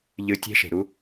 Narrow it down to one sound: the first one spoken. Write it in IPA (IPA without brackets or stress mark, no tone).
ʎ